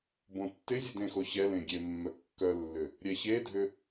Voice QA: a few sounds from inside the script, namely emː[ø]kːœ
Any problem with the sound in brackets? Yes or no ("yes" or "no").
yes